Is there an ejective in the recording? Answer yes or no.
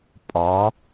yes